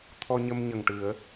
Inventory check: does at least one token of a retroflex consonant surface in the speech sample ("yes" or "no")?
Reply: yes